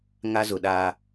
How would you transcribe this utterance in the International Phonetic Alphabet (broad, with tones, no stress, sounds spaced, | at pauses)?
ŋ a˦ z ʊ˨ ɗ a˦